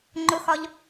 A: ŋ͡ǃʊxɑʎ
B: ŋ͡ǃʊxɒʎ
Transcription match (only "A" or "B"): B